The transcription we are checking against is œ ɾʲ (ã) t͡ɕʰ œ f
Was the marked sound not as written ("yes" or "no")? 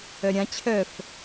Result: no